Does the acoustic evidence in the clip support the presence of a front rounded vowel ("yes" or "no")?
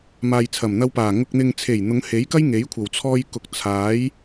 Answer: no